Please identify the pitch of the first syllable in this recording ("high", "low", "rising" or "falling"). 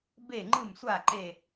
falling